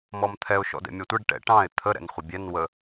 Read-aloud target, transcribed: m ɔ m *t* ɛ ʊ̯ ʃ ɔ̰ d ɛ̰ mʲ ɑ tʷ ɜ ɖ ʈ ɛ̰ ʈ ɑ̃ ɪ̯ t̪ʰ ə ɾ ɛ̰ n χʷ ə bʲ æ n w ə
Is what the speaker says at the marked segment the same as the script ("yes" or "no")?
no